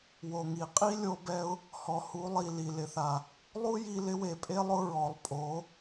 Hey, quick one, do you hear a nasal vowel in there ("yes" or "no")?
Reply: no